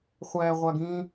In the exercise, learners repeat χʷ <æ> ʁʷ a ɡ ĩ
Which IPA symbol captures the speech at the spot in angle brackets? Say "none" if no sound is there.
æ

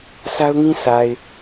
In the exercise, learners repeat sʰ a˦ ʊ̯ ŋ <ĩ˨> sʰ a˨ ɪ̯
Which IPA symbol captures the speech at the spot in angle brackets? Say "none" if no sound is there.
ĩ˦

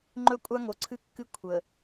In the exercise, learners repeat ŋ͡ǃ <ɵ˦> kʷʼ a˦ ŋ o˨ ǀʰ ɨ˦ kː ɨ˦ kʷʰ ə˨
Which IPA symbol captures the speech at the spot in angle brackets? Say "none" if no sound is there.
ɵ˦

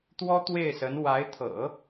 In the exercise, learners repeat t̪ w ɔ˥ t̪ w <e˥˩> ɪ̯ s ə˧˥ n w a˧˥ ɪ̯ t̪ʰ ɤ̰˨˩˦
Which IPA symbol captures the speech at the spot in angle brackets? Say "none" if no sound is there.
e˥˩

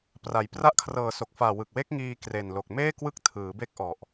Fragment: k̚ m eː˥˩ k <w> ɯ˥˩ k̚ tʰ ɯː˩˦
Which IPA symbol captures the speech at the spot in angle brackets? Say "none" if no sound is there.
w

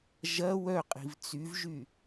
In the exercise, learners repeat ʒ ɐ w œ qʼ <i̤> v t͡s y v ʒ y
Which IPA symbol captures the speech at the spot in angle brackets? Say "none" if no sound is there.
i̤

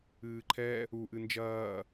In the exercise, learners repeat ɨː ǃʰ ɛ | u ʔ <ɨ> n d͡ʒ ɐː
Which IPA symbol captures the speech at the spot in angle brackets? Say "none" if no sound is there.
ɨ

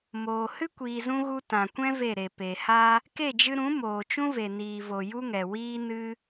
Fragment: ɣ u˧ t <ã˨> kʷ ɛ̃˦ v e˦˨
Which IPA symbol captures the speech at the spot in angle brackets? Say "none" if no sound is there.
ã˨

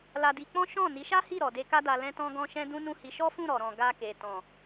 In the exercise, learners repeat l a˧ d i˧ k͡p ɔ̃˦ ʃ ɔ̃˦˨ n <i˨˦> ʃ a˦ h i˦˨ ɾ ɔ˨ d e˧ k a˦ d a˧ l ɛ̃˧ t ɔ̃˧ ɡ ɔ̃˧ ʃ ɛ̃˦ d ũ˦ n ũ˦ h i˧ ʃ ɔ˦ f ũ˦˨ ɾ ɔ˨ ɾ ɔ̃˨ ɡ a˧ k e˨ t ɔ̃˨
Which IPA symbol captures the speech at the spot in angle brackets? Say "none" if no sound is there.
i˨˦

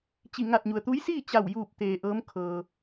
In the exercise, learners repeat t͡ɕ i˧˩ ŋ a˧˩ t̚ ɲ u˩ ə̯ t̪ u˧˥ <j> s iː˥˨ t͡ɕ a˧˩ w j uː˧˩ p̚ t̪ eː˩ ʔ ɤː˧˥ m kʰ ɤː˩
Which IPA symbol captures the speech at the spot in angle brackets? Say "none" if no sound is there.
j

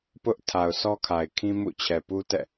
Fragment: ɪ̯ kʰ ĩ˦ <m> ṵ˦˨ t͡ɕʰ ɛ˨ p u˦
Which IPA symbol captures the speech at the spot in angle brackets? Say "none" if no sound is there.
m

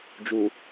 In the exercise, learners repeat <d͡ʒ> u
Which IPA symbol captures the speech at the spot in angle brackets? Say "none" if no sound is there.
d͡ʒ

